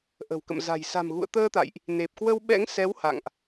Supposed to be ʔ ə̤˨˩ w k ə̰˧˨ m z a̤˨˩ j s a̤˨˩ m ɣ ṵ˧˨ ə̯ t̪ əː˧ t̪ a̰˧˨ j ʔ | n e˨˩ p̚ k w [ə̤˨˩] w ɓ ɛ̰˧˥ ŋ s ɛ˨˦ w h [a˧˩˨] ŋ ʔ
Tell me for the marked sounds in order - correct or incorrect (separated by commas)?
incorrect, incorrect